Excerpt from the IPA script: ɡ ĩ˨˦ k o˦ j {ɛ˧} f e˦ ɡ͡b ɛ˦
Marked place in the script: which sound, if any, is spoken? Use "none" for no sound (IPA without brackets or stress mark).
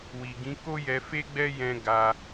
ɛ˧